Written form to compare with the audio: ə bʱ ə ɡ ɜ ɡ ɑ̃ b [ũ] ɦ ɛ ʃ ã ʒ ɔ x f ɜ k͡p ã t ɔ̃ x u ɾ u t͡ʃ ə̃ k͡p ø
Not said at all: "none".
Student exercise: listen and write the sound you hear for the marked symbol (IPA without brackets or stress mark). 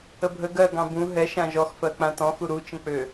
ũ